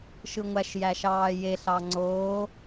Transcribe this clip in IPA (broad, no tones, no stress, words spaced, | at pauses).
ʃɯŋʷæʃjæʃɑː jeɬɑ ŋ͡ǀoː